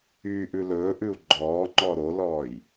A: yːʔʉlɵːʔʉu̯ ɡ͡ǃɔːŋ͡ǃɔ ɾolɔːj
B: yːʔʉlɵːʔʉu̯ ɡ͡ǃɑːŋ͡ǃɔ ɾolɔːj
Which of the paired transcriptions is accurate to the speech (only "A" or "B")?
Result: A